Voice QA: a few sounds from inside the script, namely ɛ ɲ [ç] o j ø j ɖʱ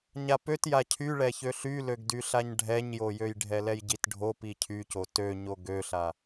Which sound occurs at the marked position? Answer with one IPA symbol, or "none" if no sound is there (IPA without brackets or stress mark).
j